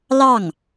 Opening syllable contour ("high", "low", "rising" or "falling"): falling